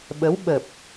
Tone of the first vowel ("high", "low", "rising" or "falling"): rising